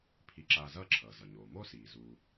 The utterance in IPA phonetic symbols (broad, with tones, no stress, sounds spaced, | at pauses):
pʰ i˧ ǁ aː˧ z ʌː˥ ǁʰ ʌː˩ z ʌ˩ ɲ oː˩ m o˥ s iː˩ z uː˧